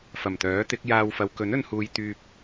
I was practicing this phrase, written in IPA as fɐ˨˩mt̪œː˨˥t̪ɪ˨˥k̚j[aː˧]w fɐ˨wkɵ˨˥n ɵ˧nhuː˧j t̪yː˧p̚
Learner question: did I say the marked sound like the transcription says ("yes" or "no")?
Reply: yes